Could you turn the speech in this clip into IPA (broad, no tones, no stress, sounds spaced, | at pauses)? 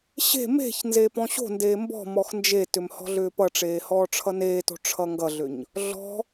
ɕ e̤ m e̤ ç n z eː p ɔ̃ ɕ o̤ n d eː m b ɔ̤ m ɔ x n d͡ʒ e t ʏ m h ɔ̤ ɮ ʏː p ʌ ʈ͡ʂ eː h ɔː ʈ͡ʂʰ ʌ n eː t o̤ ʈ͡ʂʰ ʌ ŋ ɡ ʌ ɮ ʏ ɲ | ɮ ɔ̤